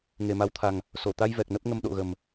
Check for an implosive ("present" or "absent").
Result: present